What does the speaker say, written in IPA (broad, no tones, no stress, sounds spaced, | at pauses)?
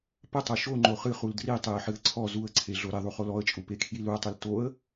p ə tˤ o ʃ o ŋ͡ǃ o χ ɨ χ u l d r i tˤ e ə̯ ħ ɨ ə̯ ǀʰ ɔ z u ə̯ ǀʰ e ɮ o ɾ e ðˤ u χ o l ɔ ə̯ t͡ʃʼ u p e kʰ j i l u ə̯ tˤ ɨ l t o ə̯